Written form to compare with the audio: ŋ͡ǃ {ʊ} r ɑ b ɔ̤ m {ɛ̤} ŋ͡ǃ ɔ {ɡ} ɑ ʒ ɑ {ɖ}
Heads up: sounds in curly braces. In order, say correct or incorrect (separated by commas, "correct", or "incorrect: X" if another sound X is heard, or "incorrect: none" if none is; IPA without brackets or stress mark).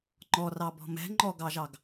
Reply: incorrect: ɔ, correct, correct, incorrect: ɡ